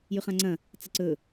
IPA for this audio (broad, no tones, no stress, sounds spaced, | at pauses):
j ʉ χ ã ŋ͡ǀ ɐ̃ | t͡s ɐ ǀ ɵ